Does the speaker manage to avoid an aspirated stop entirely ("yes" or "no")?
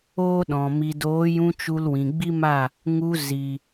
yes